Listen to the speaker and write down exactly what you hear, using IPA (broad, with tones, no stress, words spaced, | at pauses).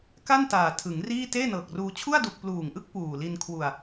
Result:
ka˥˩ntaː˨˩ tʰɯ˩˦ŋriː˥˩ teː˥˩nɤː˨˩k̚ruː˧ t͡ɕʰu˥˩a̯du˨˩k̚ pluː˨˩ŋʔɯ˥˩k̚ puː˨˩li˧n kʰwu˨˩a̯